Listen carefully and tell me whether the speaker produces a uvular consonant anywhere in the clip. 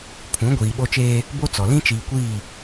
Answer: no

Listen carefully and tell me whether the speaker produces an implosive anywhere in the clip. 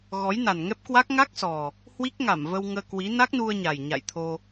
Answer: no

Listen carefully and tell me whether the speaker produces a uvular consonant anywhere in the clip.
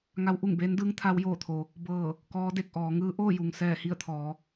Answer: no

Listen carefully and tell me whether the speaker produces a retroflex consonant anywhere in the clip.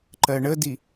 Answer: yes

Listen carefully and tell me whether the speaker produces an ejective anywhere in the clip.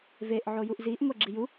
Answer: no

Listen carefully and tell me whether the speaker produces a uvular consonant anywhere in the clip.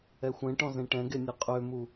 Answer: yes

